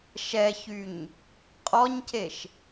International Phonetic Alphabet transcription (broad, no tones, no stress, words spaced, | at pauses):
ʃɛçyɲ | qʼɔɲceʃ